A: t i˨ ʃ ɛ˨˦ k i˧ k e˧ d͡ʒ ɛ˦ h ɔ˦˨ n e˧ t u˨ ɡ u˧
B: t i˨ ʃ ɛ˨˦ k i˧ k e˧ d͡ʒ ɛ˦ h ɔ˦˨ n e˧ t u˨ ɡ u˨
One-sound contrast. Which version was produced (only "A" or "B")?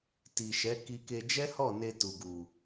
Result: B